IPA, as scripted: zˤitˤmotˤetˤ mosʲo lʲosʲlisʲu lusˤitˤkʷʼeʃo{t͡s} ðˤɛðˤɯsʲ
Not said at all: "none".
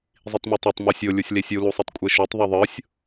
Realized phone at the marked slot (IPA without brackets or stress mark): tˤ